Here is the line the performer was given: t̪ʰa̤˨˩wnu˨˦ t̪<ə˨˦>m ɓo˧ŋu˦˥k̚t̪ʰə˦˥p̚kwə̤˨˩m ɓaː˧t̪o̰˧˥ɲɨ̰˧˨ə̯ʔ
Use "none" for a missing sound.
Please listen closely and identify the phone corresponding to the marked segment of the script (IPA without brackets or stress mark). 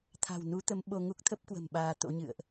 ə˨˦